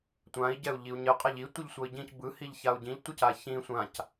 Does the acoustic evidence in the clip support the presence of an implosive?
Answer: no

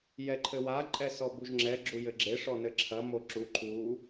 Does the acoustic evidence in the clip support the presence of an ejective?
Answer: yes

